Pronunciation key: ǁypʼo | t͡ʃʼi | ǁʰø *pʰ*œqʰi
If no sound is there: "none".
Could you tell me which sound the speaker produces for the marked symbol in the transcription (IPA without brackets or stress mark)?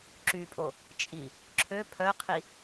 pʰ